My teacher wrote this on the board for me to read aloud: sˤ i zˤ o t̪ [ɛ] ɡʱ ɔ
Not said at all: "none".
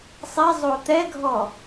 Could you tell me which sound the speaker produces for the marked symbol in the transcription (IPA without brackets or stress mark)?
ɛ